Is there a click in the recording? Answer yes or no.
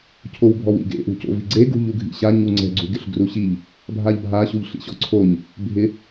yes